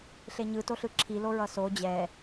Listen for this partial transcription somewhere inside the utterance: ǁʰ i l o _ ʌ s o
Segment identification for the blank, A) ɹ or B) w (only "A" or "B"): A